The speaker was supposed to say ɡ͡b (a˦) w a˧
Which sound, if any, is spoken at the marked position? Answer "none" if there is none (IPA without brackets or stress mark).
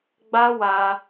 a˦